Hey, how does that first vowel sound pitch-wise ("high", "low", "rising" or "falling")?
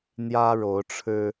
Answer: high